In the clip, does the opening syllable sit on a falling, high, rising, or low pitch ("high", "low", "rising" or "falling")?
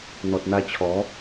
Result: low